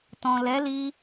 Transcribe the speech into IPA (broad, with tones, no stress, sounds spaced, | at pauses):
t ɔ̃˨ l ɛ˨˦ l i˧